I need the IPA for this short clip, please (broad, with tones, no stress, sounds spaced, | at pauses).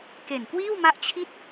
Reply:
k e˨˩ n k w iː˥˩ w m a˦˥ ʔ t͡ɕʰ i˥˩ t̚